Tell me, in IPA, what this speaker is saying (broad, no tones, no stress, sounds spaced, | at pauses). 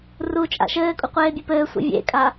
r u t͡ʃʼ a̰ ʃ ɘː kʼ u qʷ eː bʲ e p ɘː sʷ ḭ vʲ ḛ kʼ a